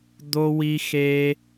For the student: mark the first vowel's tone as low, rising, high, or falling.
high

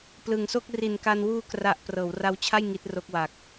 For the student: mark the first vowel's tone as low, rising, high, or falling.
low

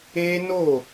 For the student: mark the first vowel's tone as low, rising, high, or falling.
high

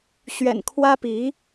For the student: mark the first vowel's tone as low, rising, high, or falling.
low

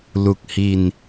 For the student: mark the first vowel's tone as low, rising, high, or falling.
low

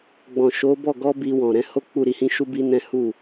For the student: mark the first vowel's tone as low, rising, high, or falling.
low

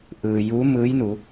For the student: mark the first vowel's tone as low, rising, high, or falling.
low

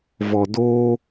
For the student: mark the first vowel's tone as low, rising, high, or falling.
low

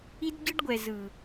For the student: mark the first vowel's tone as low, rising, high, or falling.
high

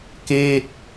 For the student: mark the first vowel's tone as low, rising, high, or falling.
falling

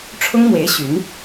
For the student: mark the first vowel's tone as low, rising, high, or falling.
high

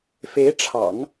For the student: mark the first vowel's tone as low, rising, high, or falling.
rising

